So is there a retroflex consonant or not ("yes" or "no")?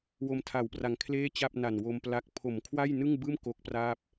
no